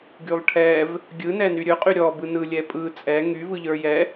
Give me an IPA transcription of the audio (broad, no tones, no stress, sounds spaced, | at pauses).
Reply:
ɡ y lˠ ʈʰ ɛ v | ɡʲ ɯ n ɛ n y ɾʲ ɵ qʼ y ɾʲ ɔ b ɯ n ɯ lʲ ɛ pʼ ɯ t͡sʼ ɛ ŋ y v ɯ ʎ ə˞ j ɛ